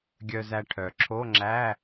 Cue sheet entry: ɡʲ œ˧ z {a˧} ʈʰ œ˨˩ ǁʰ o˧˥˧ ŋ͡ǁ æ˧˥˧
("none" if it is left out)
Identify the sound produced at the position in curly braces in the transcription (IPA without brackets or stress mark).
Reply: æ˧